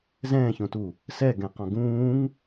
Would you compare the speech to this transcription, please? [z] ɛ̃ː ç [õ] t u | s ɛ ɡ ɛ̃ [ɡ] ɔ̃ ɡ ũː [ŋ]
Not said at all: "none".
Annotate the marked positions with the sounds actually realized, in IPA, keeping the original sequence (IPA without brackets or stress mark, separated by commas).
z, õ, q, ŋ